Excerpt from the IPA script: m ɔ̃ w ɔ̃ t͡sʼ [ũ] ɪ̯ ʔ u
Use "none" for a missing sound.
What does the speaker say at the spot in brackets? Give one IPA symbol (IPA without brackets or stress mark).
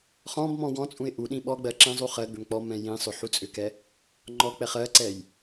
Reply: ũ